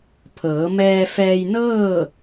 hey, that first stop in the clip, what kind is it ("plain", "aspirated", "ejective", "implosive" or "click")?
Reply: aspirated